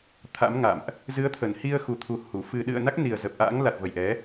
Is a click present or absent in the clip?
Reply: absent